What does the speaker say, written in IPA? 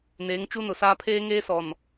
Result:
n eː˨˦ ŋ t͡ʃ u˦ n ʊ˨ s aː˦ pʰ eː˦ ŋ eː˦ s ɔ˨ n

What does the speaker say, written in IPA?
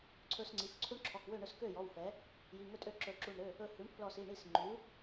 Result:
ǀʰ ɵ˦ s ŋ͡ǀ i˩˧˩ f ǀʰ u˦ ɳ ǁʰ ɔ˩˧˩ k w ø˥˩ ɳ ɵ˥˩ s k ø˥˩ j ɔ˩˧˩ w f ɛ˩˥ | j i˩˧˩ ŋ ɵ˥˩ tʼ ø˥˩ ǁ ɵ˧˩ ǁ u˧˩ ɳ ɾ ø˩˧˩ | ɵ˧˩ h ʉ˩˥ ɳ pʰ l ɔ˧˩ s i˩˧˩ ɳ i˥˩ s ŋ͡ǃ ʉ˩˥

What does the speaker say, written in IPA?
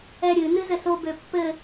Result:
ɛ ɾʲ ɨ n ɨ z ɘ s o b ø pː ɘ

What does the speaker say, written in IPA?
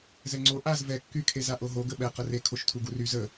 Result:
z ɛ ŋ͡ǀ o ʔ a z v ɛ kː y kʰ e z a ʔ o ɦ o ɡ ə ɓ ɛ q ə r e kʰ o ʃ tʰ u ɡ u r y z ə

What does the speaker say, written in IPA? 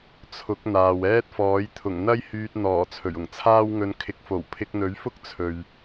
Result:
t͡sʰ ʊ˨˥ k̚ n̪ aː˨ w ɛː˥ t̚ f ɔː˨˥ j t̪ʰ ʊ˨˩ ŋ n̪ ɐ˥ j h yː˧ t̚ n̪ ɔː˨˩ t͡sʰ ɵ˨˩ ɥ ʊ˨˩ ŋ t͡sʰ aː˥ w ŋ ɵ˧ n kʰ ɪ˨˥ k̚ f o˨˩ w pʰ ɪ˧ k̚ n̪ ɵ˨˥ ɥ f ʊ˥ k̚ t͡sʰ ɵ˨ ɥ

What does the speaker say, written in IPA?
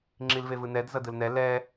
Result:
ŋ͡ǁ i l v e v ɯ n ɛ d z ʌ d ɯ l n ɛ l ɛ

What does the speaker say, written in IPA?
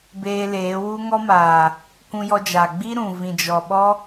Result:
b eː˧ l eː˨˦ w u˦ ŋ ɔ˦ m aː˨ | k ũ˧ j ɔ˧ d͡ʒ aː˨ ɡ͡b i˦ ɾ ũ˨ v ĩ˨ d͡ʒ ɔ˨ ɓ ɔ˦

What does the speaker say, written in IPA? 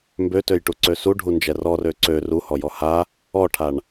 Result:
m b ø t ø j ʈ u ǀ ø s u ɖʱ u n d͡ʒ ɛ r ɔ r ø ǀ ø r u h ɔ j ɔ h a | ɔ ʈʰ a ɳ

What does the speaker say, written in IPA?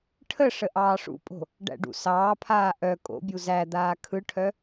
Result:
ʈʰ ə ʂ ə ʔ ɑː ʂ ṵ pʼ o̤ | ɖ æ̰ ɖ ṵ s ɑː pʰ aː ʔ œ kʼ o̰ bʲ u z æ d̪ aː kʰ ɯ ʈʰ œ

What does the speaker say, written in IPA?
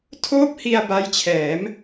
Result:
tʰ oː˥˩ p̚ h i˧ a̯ b a˦˥ j t͡ɕʰ ɛː˩˦ m

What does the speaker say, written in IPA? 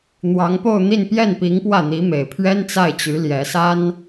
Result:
n̪ w ɑ˧˥ ŋ p o˥˧ ʊ̯ n̪ i˥˧ n p j ɛ˥˩ n p i˧˥ ŋ p w ä˥˩ n̪ i˧˥ m e˨˩ ɪ̯ pʰ ɥ ɛ˥ n t͡s a˥˩ ɪ̯ t͡ɕ y˧˥ l j ɛ˧˥ s a˥ n

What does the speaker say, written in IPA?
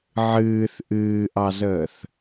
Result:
ʕ ɨː θ ʔ ɨː ʔ ɑ z əː θ

